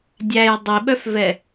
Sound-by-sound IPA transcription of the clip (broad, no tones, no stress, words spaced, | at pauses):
dʲæj dˤiɓœfvɛ